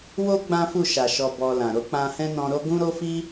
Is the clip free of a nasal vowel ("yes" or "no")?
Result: no